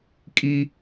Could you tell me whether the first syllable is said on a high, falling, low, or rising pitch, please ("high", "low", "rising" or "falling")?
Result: high